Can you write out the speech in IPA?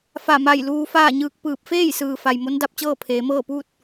fa˧˩ma˧˩j luː˧faː˥˨ɲɯː˧k̚pɯː˧˩p̚ feː˥˨jsɯː˩fa˩j mo˧˥nda˥˨p̚t͡ɕɤː˥˨ pʰeː˩˧mɤː˥˨puː˥˨t̚

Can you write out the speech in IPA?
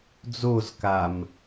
d͡zoz kam

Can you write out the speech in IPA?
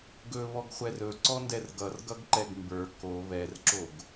ɡɵβɔɡχʷɛr ɵǀɔndɛr ɡʌrɡʌɡǃɛɡ mbə˞ ko βɛrǁoɡ

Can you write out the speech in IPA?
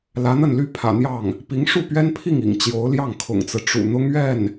lä˧˥n̪ə˥˩nly˥ pʰä̰˨˩n̪jɑ˥˩ŋ | pi˧˥ŋ ʂu˥˩pɥɛ˥npʰi˥˩ŋḭ˨˩ŋ t͡ɕjo˧˥ʊ̯ljɑ˥˩ŋ kʰʊ̰˨˩ŋt͡sɹ̩˦ ʈ͡ʂṵ˨˩ n̪ʊ˥ŋɥɛ˥˩n

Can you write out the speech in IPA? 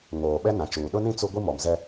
ŋoː˨ɓɛ˦ nã˨t͡ʃuː˨ ɗʊ˦nĩ˦ t͡su˦ ɡʷi˦mɔ˨mzɛ˦

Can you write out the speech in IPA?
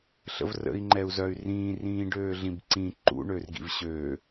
ɬə̰vrə̰i̯ ŋ͡ǃɛu̯zœy̯rĩː rĩːɖøːɮĩbǀĩ ǃṵ ɳørɡḭvɕøː

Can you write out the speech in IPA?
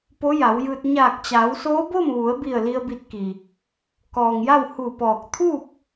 po˧˥ja˩˧wjɯː˧t̚ ɲaː˧˩k̚t͡ɕaː˩˧wsoː˧˥ bo˥˨mʋu˩˧ə̯bi˧˩ə̯ li˧ə̯bi˧t̚ki˩ | kɔː˩ŋja˥˨w hu˧˩pɔː˧˩k̚ t̪ʰu˥˨p̚

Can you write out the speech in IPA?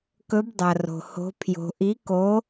kɵ˧˥bdˤɐ˨ro̤˨ho̤˧˥ pʰjo̤˨ʔi˧˥ko˧˥

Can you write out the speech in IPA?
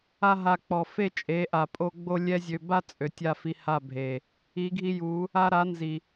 a˦ɦa˧ k͡pɔ˨fe˦t͡ʃʼe˨˦ ʔa˨pʼo˧ ɡ͡bo˦lʲɛ˦zʲø˧ ba˦t͡sʼø˨ tʲa˦˨fi˧ha˦˨bʱe˨ | i˨˦ɡʱi˧ju˨˦ | a˧ɾa˨˦ nzi˨

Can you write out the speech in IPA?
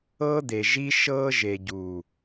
ɤː˦d̪e˨ ʒi˦ʃɤː˦ ʒe˨ɟuː˨

